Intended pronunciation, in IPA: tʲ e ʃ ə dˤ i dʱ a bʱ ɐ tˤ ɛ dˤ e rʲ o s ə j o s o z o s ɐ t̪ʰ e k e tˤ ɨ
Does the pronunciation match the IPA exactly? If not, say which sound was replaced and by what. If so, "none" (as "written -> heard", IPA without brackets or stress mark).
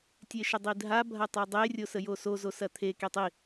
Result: ɨ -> i